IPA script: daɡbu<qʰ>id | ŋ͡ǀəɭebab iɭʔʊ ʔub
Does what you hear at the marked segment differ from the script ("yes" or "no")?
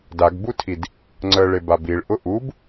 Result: yes